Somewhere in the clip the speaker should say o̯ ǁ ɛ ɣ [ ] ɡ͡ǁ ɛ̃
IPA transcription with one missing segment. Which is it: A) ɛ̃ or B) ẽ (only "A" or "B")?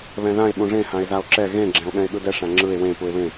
B